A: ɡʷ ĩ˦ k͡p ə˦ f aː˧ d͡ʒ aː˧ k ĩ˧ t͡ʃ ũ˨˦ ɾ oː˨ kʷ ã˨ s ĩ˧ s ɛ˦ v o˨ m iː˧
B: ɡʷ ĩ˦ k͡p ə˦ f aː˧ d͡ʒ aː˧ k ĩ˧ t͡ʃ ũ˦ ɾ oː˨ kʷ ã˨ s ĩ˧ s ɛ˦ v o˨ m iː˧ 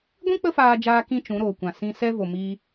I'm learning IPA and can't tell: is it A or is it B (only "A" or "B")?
A